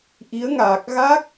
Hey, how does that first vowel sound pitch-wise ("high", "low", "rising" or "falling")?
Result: rising